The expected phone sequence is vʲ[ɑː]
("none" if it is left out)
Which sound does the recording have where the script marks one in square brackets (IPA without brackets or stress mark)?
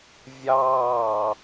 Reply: ɑː